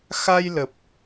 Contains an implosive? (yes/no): no